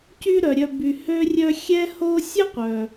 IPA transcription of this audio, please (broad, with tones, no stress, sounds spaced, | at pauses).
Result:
c y˦ ɾ œ˩ ɾʲ œ˨ b y˩ h ø˥ rʲ œ˥ xʲ ɛ˦ h o˦ sʲ ə˥ qʷ œ˩